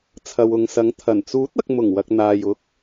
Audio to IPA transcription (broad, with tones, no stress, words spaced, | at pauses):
t͡sʰɐ˨wʊ˨ŋsɐ˨˧ŋ t̪ʰɐ˨˩n t͡suː˨˥t̚ɐ˨k̚ mʊ˨˩ŋwɐ˨k̚n̪aː˨j ʊ˨˥k̚